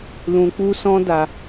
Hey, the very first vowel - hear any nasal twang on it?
yes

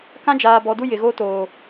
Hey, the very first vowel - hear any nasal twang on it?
yes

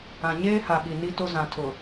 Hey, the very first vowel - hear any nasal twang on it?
yes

